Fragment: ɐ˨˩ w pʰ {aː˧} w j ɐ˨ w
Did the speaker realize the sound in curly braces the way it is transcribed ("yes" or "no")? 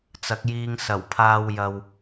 yes